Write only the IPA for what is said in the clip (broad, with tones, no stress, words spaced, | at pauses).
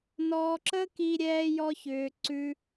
nɔː˧ǁə˦ki˧ ɾʲɛː˧jɔ˧çʏː˨ ǀʉ˧